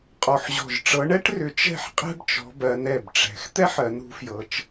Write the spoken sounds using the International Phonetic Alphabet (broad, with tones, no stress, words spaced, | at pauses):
qʼɔ˧˩ħʑɔ̤˧˩ʒ ʈ͡ʂɤ˨˦ɳɛ˥ʈrʏ˨˦ t͡ʃɛ̤˥˨ħqʼɛ̤˥bt͡ʃɔ̤˨˦bɜ˨˦n ɛ˧˩bʈ͡ʂɛ̤˨˦x t̪ɛ˥ħɜ˨˦nɾṳ˨˦fjɤ˨˦t͡ʃ